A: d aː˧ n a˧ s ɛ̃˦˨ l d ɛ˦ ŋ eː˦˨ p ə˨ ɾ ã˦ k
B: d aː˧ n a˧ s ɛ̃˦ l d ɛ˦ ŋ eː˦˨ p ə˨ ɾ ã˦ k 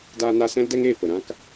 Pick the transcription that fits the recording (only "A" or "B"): B